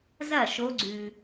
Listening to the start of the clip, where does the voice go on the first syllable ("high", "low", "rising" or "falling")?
falling